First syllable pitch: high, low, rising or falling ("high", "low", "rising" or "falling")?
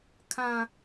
high